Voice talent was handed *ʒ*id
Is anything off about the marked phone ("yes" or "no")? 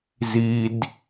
yes